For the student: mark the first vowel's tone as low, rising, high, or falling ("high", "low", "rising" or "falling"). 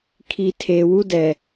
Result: low